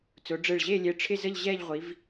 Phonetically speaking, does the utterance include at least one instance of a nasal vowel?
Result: no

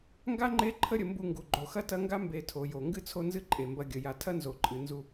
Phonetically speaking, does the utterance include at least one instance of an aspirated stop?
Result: yes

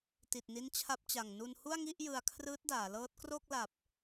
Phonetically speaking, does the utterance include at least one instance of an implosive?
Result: no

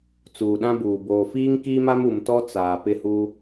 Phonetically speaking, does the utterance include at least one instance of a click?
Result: no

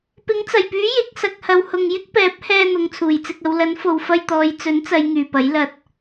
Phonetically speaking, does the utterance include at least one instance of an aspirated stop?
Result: yes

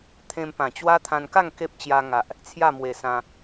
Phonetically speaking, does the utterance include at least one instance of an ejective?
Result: no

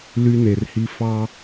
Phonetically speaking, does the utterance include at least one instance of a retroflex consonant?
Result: no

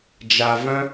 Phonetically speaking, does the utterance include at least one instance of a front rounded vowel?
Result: yes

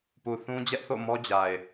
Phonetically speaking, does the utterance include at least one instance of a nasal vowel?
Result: yes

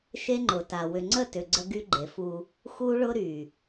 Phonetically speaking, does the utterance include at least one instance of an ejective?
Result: no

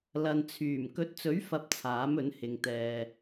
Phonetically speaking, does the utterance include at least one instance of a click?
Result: no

